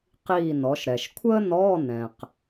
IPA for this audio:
qiː˧˩nɔ˩˧ʃ ɾɛ˩ʃkʷʰəː˥nɔː˧˥˧nɛ̃˩q

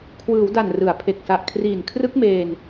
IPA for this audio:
kʰwɯː˩˦wda˨˩n rɯ˨˩a̯ pʰe˨˩k̚sa˨˩ʔkʰriː˨˩n kʰrɯ˦˥k̚meː˧n

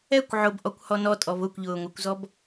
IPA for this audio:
ɛkʷ ʕʊbʔɔkʷ hɔnɔtʼɔ βʊkʷʎʊːŋʷɛkʷzɔb

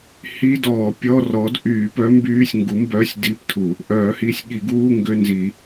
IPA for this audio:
hiː˧˥˧dɔː˨˩˦pʲɔː˧˥˧rɔː˨˥d ʔyː˨˩˦pœ˨˥ mbyː˧˥˧sʲŋɡu˨˥mbœː˧˥˧sʲdi˧˥˧p tʰu˨˩˦ | ʔœː˨˩˦hiː˨˥sʲɠi˨˩˦ɡuː˧˥˧ ŋɡø˧˥˧nzi˨˩˦

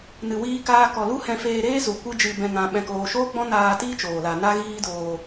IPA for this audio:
nɨ˧wiː˦ kaː˦kɔ˧ lu˦hɛ̃˧feː˧ɾeː˦ zu˨ kʷɨ˦d͡ʒɨ˧bɛ̃˧ ŋã˨ɓɛ̃˨koː˨ʃoː˦ ɡ͡bɔ̃˦naː˧ tiː˦t͡ʃoː˨la˨ na˦ɣiː˦ doː˧

